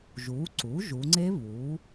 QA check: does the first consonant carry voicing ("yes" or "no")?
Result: yes